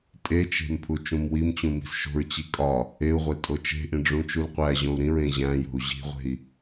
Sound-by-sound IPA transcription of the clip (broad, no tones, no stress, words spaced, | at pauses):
tʼet͡ʃe̤m pʰut͡ʃũmwimt͡ɕũ mi̤sʃo̤ɹt͡ɕi kʼɒ | eu̯ʁʷe tʼot͡ʃe̤ʔĩ ɖ͡ʐũt͡ʃulqʷæʑõu̯ ɾĩɹ ẽʑæ̃jo̤u̯ ʑi̤ʁʷe̤i̯